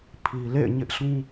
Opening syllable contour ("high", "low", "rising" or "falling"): low